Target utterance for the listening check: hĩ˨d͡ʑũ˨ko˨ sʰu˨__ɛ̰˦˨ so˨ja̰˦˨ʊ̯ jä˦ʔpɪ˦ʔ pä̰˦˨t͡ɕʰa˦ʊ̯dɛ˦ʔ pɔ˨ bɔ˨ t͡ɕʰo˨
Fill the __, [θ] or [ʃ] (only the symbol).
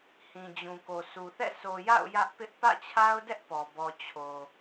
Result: θ